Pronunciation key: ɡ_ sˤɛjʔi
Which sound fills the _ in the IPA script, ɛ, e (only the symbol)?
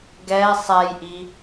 ɛ